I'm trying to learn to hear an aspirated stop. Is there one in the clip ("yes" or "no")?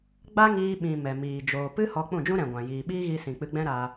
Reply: no